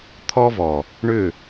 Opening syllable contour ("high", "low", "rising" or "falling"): high